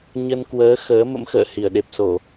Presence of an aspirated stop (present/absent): absent